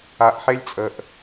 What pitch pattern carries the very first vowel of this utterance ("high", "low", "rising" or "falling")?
low